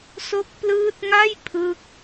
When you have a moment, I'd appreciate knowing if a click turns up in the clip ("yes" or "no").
no